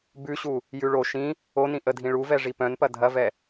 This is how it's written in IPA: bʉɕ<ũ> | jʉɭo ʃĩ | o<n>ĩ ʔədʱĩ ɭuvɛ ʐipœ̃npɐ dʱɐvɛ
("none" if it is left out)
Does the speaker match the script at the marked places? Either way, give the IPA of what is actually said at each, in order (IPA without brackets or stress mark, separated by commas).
u, n